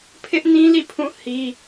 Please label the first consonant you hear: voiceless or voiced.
voiceless